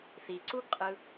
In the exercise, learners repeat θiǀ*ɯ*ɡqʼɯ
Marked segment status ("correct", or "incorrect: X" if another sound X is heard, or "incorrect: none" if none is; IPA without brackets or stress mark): incorrect: u